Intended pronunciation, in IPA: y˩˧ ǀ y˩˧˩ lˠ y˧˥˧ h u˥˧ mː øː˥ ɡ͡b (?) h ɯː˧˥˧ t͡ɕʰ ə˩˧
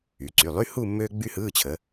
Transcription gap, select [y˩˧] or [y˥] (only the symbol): y˥